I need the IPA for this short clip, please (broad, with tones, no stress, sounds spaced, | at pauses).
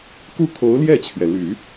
k u˥˩ kʰ o˧˥ ʊ̯ l j ɛ˥˩ t͡ɕʰ ɥ ɛ˩ l y˨˩˦